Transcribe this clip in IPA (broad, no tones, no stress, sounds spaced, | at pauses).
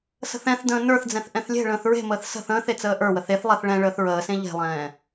s ə̤ θ ɛ̃ θ d ə̃ː n ə˞ θ d͡z ɛ̃ θ ʔ ɛ̃ θ lʲ e̤ ɭ ə̃ː θ ɹ e̤ m əː θ s ə̤ θ ə̃ː θ e t͡s əː ʔ ə˞ w ə θ e θ lˠ e θ ɭ ɛ̃ ɭ əː θ ɹ əː s ẽ ʎ e̤ lˠ ɛ̃ː